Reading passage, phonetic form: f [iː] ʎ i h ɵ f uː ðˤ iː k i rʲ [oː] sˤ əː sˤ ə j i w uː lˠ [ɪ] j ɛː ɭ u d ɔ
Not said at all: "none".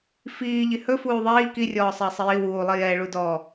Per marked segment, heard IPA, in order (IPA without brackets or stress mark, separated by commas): iː, ɔː, i